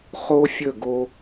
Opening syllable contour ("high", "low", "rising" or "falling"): high